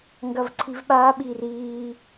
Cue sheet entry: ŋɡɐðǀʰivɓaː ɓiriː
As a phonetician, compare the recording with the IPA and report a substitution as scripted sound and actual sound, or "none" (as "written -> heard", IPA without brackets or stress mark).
ð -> v